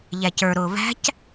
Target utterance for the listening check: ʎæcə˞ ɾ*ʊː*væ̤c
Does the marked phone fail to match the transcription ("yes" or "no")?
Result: no